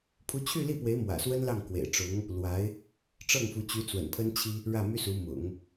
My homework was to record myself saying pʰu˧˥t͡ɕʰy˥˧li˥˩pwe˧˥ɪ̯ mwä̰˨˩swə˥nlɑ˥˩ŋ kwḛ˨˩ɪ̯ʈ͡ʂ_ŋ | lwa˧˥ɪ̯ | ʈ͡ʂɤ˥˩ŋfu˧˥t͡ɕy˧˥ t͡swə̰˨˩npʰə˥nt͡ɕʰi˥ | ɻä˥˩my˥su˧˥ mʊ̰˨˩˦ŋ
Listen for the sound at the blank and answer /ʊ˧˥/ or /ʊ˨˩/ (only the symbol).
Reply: ʊ˧˥